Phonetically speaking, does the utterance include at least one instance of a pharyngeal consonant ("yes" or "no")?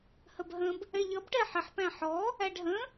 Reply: yes